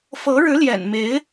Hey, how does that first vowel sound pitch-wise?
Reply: rising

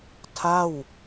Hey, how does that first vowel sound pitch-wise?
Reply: falling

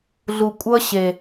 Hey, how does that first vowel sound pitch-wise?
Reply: low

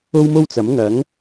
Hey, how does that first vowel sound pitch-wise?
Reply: high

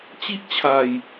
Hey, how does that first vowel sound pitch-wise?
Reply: high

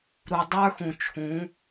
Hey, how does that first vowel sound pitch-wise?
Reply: low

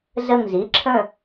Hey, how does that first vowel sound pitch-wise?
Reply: falling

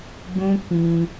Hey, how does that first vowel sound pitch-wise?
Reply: high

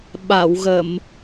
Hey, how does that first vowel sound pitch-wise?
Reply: low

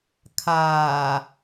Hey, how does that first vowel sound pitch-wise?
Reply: low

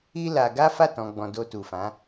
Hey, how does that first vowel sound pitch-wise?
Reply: high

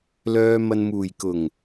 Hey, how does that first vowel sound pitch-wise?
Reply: low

